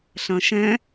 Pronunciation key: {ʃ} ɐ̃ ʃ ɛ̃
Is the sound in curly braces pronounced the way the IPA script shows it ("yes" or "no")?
no